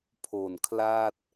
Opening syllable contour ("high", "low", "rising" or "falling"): low